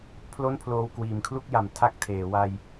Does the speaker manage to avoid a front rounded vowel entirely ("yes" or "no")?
yes